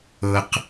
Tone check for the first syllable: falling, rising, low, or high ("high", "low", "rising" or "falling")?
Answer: high